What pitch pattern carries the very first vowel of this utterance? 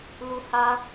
high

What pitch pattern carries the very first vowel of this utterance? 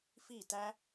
falling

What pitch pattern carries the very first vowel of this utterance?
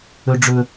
high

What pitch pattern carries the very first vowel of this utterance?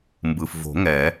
low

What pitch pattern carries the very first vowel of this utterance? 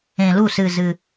low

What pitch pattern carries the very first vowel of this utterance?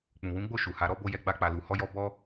low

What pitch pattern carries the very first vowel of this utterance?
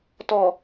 low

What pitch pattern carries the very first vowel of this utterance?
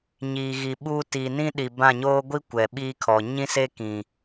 low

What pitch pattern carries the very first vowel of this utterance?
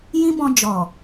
high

